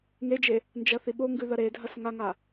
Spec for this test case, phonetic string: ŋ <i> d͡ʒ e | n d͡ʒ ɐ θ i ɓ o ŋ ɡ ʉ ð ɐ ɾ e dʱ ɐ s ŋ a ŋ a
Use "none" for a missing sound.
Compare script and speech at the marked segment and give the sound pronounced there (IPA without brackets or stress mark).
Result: e